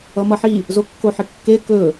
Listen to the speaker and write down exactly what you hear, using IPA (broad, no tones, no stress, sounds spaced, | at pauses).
ʌ m ʌ ħ i | z o kː o ħ ɪ kː e k ɵ